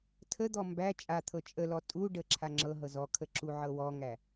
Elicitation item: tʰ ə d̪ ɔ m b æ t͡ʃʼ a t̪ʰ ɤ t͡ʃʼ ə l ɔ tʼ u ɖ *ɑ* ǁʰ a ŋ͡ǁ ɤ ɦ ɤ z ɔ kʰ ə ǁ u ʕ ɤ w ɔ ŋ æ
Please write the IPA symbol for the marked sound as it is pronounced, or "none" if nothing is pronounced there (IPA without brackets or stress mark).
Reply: ə